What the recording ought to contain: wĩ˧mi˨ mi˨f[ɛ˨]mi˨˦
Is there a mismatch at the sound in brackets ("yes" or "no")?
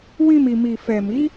no